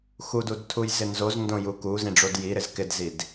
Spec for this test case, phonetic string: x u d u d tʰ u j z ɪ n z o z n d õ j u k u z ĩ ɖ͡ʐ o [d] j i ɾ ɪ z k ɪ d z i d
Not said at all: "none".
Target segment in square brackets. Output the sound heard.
d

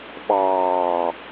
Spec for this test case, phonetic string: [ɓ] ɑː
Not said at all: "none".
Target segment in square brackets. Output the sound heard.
ɓ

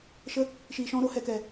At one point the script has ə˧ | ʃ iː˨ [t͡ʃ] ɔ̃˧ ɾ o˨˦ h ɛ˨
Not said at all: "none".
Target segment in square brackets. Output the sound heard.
ʃ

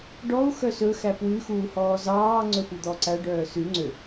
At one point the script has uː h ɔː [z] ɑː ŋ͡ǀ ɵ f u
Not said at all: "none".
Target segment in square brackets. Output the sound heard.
z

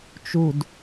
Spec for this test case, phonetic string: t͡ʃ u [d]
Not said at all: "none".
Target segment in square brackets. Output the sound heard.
d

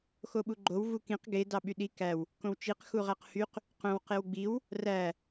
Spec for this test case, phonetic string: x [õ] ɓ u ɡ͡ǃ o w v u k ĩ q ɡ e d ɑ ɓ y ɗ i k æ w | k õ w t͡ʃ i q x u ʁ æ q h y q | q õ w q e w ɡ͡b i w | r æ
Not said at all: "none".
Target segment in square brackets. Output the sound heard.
o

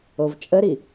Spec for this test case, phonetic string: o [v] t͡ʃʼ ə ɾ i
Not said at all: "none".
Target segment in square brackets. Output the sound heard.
v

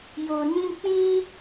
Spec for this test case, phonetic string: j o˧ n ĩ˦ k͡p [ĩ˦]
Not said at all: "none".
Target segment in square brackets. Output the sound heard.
ĩ˦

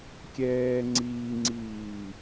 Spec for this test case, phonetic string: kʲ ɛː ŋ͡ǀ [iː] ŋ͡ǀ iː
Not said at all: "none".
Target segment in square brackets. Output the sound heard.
iː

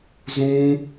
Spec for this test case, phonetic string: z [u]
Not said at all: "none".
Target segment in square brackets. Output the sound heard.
ũ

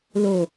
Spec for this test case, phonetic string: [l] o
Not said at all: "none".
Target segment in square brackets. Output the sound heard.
l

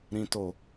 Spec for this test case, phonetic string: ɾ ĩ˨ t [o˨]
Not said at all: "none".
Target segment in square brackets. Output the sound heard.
o˨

